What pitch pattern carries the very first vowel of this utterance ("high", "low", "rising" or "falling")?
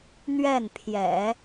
falling